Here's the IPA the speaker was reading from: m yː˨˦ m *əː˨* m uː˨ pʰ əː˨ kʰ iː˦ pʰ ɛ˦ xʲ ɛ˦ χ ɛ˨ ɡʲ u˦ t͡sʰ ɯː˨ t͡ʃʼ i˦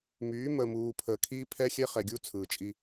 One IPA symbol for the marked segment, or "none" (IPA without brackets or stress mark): ə˨